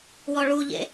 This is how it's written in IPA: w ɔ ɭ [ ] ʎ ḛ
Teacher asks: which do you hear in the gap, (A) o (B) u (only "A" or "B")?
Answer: B